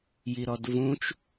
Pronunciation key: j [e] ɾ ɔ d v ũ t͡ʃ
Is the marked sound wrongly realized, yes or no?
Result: yes